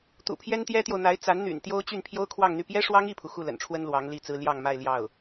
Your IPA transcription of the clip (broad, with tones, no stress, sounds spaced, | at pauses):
t̪ ṵ˨˩ pʰ j ɛ˥ n t̪ j ɛ˥ t̪ j o˨ ʊ̯ n̪ a˧˥ ɪ̯ t͡s a˧˥ n n̪ y̰˨˩ n t̪ j o˥ ʊ̯ t͡ɕ y˥˩ n pʰ j o˥ ʊ̯ kʰ w ɑ˥˧ ŋ n̪ y˥˩ p j ɛ˥ ʂ w ɑ˥ ŋ i˥˩ pʰ u˩ x u˥˩ l ə̰˨˩ n ʈ͡ʂʰ w ə˥ n l w ɑ˧˥ ŋ l i˥˩ t͡s ɹ̩˥ l j ɑ˥˧ ŋ m a˥˧ ɪ̯ l j ɑ˥˩ ʊ̯